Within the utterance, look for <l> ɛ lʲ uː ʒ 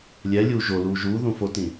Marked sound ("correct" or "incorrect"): incorrect